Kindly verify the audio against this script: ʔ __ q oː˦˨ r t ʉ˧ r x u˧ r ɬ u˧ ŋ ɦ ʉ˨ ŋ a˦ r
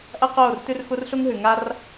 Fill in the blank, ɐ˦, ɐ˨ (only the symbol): ɐ˦